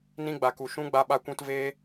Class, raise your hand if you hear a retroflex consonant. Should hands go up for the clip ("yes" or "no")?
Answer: no